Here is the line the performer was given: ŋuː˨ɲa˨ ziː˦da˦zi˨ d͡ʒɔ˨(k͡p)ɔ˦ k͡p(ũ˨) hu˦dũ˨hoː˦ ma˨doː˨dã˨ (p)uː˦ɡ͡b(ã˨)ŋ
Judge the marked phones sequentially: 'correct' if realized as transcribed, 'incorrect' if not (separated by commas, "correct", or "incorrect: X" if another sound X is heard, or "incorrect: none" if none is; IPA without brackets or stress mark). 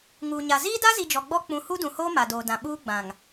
incorrect: ɡ͡b, correct, incorrect: ɓ, correct